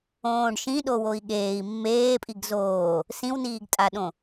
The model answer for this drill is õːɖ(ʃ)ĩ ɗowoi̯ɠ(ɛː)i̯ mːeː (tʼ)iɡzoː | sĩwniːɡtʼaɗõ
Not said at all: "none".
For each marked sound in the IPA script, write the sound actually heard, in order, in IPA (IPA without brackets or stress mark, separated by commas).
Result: ʃ, eː, pʼ